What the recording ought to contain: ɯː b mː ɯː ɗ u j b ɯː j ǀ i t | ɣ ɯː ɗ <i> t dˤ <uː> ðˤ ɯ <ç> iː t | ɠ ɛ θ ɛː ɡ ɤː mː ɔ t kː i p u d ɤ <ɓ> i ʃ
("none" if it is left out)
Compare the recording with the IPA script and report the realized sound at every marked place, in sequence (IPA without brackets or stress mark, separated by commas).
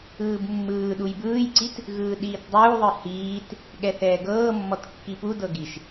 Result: iː, uː, h, ɡ